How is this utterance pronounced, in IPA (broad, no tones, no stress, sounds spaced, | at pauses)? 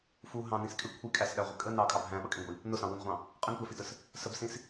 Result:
f u ɦ ɑ̃ n ĩ s kʼ ɪ kʷʰ i kʼ æ s ɗ æ ʁʷ ɪ kʼ ə n ɑ kʼ ɑ b ɦ æ̃ ɓ ʌ kʼ ĩ ɡʷ i | n ʊ s ɑ̃ w u n ʁʷ ɑ̃ | qʼ ə n tʷ æ f i t ə s | s ə b s ĩ s